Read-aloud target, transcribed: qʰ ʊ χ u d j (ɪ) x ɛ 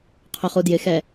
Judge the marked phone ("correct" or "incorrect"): correct